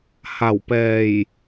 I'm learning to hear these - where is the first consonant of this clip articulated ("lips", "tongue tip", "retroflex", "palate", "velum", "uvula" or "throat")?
throat